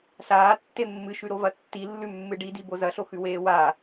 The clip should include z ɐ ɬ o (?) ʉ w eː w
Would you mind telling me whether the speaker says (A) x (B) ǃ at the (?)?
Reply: A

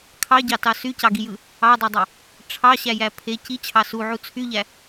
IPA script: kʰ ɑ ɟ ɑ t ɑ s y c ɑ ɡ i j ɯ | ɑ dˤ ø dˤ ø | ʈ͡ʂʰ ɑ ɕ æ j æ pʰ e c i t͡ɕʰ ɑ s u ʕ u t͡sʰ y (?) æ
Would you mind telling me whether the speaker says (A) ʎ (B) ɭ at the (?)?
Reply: A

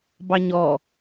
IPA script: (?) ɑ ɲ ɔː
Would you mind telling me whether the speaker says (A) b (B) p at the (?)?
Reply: A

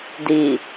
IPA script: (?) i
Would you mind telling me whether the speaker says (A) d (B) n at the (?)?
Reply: A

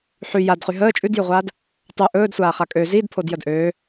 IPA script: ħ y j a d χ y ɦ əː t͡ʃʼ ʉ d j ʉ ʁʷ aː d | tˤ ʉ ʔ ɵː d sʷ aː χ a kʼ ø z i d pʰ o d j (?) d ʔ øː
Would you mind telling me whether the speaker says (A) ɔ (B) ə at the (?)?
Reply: B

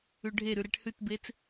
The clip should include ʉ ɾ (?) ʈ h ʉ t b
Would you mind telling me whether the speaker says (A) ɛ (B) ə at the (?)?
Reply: A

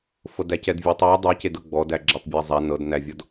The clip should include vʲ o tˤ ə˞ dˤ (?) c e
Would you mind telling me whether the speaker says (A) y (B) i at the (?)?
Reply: B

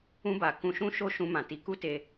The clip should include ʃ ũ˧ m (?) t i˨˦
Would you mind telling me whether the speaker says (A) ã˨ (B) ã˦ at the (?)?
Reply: A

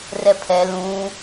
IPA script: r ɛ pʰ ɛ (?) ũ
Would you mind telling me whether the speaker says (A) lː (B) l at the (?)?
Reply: B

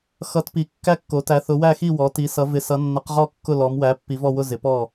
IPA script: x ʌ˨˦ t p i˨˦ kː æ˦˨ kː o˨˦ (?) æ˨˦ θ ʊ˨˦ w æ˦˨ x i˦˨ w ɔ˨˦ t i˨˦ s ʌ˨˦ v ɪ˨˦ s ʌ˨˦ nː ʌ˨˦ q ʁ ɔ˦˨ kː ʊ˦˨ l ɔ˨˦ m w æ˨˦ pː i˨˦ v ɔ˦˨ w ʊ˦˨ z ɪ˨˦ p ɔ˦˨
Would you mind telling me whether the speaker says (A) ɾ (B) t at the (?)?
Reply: B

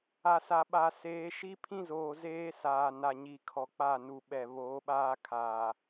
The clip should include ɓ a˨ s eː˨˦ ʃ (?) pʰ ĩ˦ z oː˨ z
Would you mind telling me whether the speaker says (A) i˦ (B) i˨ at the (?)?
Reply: A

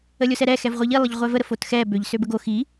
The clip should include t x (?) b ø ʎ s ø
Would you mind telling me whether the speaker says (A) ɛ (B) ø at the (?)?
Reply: A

